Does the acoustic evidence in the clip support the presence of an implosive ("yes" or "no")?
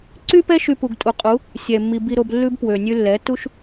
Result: no